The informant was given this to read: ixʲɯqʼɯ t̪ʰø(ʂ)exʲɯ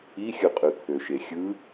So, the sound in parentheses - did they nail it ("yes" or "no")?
no